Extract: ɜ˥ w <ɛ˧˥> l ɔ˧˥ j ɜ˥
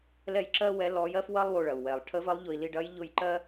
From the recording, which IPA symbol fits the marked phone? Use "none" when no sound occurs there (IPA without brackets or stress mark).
ɛ˧˥